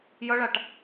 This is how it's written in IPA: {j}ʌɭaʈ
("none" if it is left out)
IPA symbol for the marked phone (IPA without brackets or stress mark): j